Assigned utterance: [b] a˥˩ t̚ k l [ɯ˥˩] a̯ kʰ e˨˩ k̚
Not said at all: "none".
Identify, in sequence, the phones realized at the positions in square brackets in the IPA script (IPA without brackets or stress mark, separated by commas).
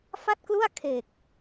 f, u˥˩